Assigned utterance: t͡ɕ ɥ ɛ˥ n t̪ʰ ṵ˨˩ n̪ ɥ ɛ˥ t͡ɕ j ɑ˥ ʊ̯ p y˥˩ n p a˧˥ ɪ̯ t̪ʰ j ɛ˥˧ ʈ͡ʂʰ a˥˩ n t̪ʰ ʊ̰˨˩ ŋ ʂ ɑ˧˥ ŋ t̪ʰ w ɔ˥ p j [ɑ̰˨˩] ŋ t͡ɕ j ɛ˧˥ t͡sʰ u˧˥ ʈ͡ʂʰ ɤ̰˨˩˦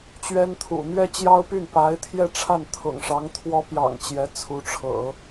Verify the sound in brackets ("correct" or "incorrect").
correct